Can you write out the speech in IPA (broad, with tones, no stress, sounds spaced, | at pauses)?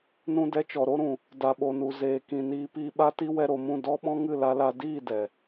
n ũ˧ d ɛ˧ t͡ʃ ɔ˨ ɾ o˦ ɾ ũ˨ | d a˨ ɓ o˨ n u˨ z eː˨ k ĩ˨ n iː˧ p iː˧ ɓ a˦ t i˦ w ɛ˧ ɾ o˨ m ũ˦˨ d ɔ˦ ɓ ɔ̃˦ ŋ ɨ˦˨ l a˧ l a˧ d iː˦˨ d ɛ˨